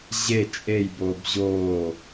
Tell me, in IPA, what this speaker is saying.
ʑ e t͡ʃʼ e j b oː b ʑ oː

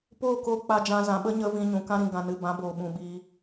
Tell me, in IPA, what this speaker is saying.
p oː˦˨ k oː˧ k͡p a˧ d͡ʒ ã˧ z ã˨ ɓ ə˦ ɲ ə˧ v ĩ˧ ɲ ũ˨ k ã˧ ɾ ĩ˨ ɡ ã˨ n ɨ˨ b ã˨˦ b oː˨ ɓ ũ˨ ɓ iː˧

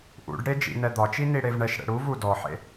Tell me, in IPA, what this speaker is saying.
ʔ ṵ ɖ ɽ e d͡ʒ ḭ n ɛ d̪ ɒ t͡ʃ i n i ɽ e v ɳ ɛ ʃ ɽ ɛ̰ ɽ u v u d ɔ ħ ḛ

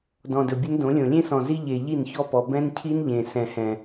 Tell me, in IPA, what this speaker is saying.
d ɔ̃˨ d ɵ˨ bʲ ʊ˦ n d õ˨˦ lʲ õ˨ lʲ ẽ˦ s ɔ̃˨ z i˦ ʎ e˨ ʎ i˦˨ n ç ɔ˦ p ɔ˨ b ɛ̃˦ n cʰ i˦ n ʎ ẽ˨ s ɛ̃˨ h ɛ̃˨

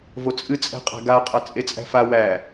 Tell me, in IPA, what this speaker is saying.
v o t͡sʼ ɨ t͡sʼ ɛ̤ qʼ æ̤ ɡ a qʼ a t͡sʼ e t͡sʼ æ̤ f a w æ

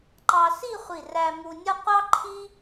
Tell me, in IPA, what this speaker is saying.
ǃ ɑ˧ s i˥˧ χʷ i˧˩ r æ˧ m u˧ nʲ ʌ˥ qʷ ɑ˥ ǃʰ i˥

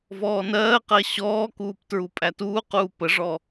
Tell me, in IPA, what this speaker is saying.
v ɔː n ɜː q ɜ ɕ ɔː k uː p t ɹ u pʼ æ t uː q uː p ə ʐ ɔ

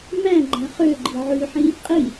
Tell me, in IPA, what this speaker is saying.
m æ̃ ɡ͡ǃ æ̃ χ ø ɡ͡ǃ i ʕ ʉ ħ ĩ | qʼ i

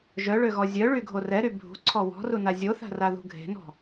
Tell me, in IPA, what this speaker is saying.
ʒ œ ɭ ø ɣ ɔ zʲ œ ɭ y ɡʱ o r ɛ ɾ y bʱ ṳ ǀʰ ɔ w ɔ̤ r u n a zʲ o θ a̤ r a ð ṳ ɡʱ e̤ n ɔ̤

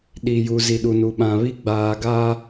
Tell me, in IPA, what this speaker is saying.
ɗ i˨ j u˨ z i˨ ɗ u˨ n u˨ ɓ ã˨ β i˦ ɡ͡b aː˨ ɡ aː˦

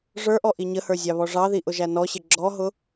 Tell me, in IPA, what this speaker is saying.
ʐ ə˞ ʔ ɔ ʔ i ɲ ə h ə˞ zʲ ɑ β ɔ ʐ ɑ ð i ʔ ʊ ʒ æ n ɔ ɕ ɪ ɡ͡ǁ ɔ ɦ ʊ

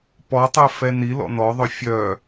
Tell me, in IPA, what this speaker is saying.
p ɔ tˤ œ f ɛ n i l ɔ̰ n ɔ ðˤ ɵ fʲ œ

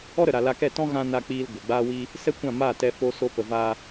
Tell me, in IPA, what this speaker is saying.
ɔ˦ ɾ ə˨ ɾ a˨ l a˧ k ɛ˦˨ t ɔ̃˦ ɣ ã˦ n a˧ k͡p iː˧ l ɡʷ ə˨ ɡ͡b aː˦ w i˦ | s ɛ˦ kʷ ã˦˨ m aː˦˨ t ɛ˧ f o˧ s o˧ p ə˧ v aː˦

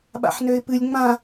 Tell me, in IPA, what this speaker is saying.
ɓ a̰ ħ n ø ɪ̯ p ɨ lʲ ŋ͡m ã

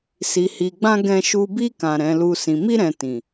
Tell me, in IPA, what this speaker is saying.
s i˨ h i˨ ɡ͡b ã˧ ɡ ɛ̃˧ ʃ u˧ b i˧ k ã˨ ɾ ɛ̃˨˦ l u˧ s ĩ˨ m i˧ ɾ ɛ̃˨ t ĩ˨

